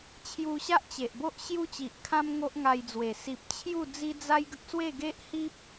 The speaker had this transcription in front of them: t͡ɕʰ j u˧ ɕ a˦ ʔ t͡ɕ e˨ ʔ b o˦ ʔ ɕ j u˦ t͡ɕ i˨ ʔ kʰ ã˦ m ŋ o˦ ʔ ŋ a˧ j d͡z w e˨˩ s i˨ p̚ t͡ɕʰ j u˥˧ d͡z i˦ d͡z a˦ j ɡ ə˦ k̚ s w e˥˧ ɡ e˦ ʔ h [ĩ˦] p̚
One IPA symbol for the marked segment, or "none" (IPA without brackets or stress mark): i˦